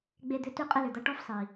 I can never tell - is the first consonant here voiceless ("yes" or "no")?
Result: no